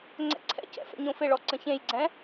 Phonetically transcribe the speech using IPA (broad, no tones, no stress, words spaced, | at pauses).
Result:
ŋ͡ǀɛ̰ǀʰɛ̰cɛ̰ fɛ̰ɲõfɪɭɔ ǀə̃çẽjɡ͡ǀɛ̃